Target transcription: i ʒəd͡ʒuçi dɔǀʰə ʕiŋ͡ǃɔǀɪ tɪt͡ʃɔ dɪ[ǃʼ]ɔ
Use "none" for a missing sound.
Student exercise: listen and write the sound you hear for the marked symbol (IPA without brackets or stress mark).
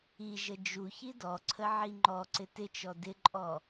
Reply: ǃʼ